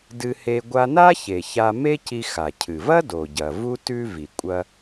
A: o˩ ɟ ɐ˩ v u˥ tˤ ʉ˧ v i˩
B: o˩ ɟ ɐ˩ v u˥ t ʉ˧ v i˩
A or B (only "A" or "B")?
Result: B